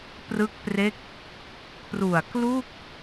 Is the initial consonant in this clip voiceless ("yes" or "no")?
yes